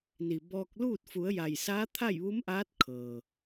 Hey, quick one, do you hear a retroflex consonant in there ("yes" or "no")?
no